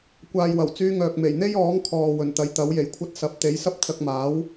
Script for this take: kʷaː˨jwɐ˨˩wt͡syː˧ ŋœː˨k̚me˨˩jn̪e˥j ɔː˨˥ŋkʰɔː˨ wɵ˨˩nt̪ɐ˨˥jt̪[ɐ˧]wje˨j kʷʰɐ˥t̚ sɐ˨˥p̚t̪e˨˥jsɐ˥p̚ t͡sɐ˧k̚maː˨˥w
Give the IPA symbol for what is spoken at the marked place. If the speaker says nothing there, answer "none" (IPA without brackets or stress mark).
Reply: ɐ˨˥